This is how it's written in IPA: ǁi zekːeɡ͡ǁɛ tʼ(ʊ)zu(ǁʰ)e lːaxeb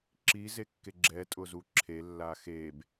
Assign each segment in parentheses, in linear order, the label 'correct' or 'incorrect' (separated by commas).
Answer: correct, correct